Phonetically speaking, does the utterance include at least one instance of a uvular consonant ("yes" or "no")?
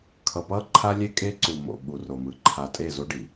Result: no